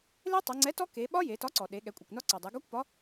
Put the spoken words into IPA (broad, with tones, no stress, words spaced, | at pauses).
le˦˥tˤe˩˧ŋ͡ǀɛ˨˥tɔ˦˥ ke˩˧ɓɒ˦˥ je˩˧tɒ˨˥ǀɔ˩ɗe˩˧ ɠɛ˩˧kʷʼɛ˩kʷnɒ˦˥ǀɔ˩ dˤe˩˧ɡɔ˦˥kʷpɒ˨˥